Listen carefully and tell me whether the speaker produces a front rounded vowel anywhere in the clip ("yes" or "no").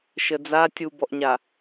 no